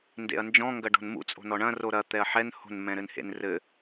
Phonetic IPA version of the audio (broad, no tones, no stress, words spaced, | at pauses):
ndḛɐ̯nd͡ʒɔ̃ ŋɡɐɖo̤nmṵ t͡sʼo̤nɔɳɐ̃ roɾɐ t̪ɛɐ̯ħɛn ho̤n mɛ̃ɾɘnhḛnrɘ